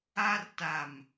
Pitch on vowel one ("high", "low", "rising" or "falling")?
high